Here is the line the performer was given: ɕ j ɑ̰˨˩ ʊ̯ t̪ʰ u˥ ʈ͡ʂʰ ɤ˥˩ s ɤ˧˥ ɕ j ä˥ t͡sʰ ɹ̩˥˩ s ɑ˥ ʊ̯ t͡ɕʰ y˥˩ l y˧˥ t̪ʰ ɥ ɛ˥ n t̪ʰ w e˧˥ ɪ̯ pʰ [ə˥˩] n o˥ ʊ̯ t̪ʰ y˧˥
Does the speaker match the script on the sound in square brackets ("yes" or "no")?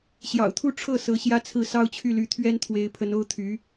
no